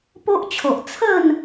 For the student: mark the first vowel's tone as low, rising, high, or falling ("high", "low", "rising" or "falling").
high